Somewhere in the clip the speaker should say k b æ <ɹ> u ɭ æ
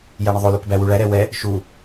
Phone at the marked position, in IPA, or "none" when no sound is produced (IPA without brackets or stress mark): w